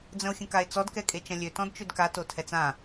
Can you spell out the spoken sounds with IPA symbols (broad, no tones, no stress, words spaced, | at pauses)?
d͡zə̃o̯xʲə̃kae̯t͡sɔd kɛkʼet͡ʃɐ̃lʲø tɔ̃dt͡ʃødka totʰɛt͡sã